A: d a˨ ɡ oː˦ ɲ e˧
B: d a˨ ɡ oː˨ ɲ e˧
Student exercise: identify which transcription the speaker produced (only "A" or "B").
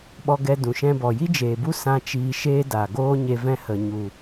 A